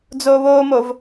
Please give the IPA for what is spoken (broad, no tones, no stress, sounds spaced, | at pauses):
d͡z oː β oː m o v